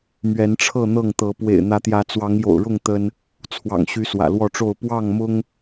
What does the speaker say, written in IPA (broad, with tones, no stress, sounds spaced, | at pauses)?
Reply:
m ɥ ɛ˨˦ n ʈ͡ʂʰ ɤ˥˨ n̪ ɤ˥˨ ŋ t̪ ɤ˨˦ p w ḛ˨˩ ɪ̯ n̪ ä˨˦ t̪ j ä˨˦ t͡s w ɑ˨˦ ŋ j o̰˨˩ ʊ̯ ɻ ʊ˥˨ ŋ t̪ ə˦ n | t͡sʰ w ɑ̰˨˩ ŋ ɕ y˨˦ s w ä̰˨˩ l w ɔ˥˨ ʈ͡ʂ o˥˨ ʊ̯ p w ɑ˥˨ ŋ m ʊ˦ ŋ